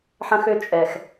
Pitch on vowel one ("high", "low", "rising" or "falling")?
high